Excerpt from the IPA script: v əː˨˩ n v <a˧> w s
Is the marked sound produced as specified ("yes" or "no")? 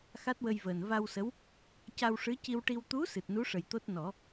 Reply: yes